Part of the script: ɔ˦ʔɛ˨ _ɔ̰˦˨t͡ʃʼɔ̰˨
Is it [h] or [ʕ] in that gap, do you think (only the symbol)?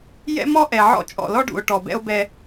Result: ʕ